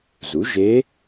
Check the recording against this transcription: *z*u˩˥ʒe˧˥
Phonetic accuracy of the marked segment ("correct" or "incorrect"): correct